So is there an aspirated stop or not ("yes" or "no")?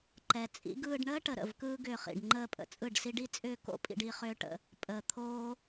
yes